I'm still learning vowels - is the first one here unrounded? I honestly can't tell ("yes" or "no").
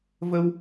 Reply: yes